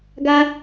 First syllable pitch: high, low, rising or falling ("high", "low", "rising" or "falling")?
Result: high